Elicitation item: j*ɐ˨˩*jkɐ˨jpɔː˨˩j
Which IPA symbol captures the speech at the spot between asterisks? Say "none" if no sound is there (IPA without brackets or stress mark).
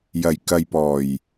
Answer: ɐ˨˩